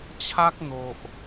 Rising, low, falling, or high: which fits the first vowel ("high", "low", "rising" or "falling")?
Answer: high